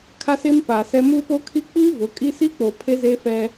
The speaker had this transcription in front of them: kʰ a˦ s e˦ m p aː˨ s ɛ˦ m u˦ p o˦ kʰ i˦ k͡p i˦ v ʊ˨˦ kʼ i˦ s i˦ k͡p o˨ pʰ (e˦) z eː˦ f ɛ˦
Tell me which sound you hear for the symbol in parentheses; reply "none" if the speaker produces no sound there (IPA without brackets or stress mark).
e˦